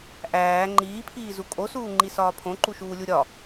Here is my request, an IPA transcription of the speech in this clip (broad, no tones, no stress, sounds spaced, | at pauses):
ʔ æː ŋ͡ǃ iː pʰ iː z u kʼ o s uː ŋ͡ǃ i s ɒː pʰ õ ǃ u ʃ uː lʲ u ɾʲ ɒ